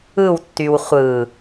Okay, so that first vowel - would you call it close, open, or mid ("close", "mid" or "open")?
close